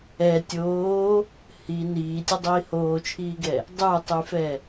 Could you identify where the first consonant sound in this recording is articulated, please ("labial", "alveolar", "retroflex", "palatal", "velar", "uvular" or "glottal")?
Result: alveolar